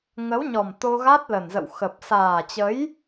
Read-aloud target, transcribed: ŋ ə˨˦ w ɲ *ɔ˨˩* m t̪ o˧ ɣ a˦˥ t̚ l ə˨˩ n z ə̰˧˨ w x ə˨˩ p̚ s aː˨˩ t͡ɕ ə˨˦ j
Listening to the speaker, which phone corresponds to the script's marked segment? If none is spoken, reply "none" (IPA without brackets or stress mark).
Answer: ɔ˨˩